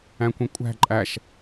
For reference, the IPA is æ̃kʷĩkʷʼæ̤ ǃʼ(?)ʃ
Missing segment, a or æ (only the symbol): æ